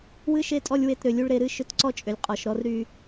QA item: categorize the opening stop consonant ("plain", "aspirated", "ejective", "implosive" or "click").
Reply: ejective